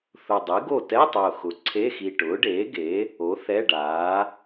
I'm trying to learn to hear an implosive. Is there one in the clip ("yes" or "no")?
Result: no